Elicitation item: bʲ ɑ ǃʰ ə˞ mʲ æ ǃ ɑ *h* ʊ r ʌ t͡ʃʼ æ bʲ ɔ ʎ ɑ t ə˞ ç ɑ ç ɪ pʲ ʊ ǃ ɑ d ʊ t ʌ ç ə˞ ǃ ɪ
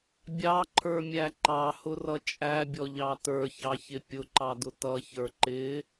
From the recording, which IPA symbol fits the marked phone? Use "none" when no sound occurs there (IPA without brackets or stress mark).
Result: h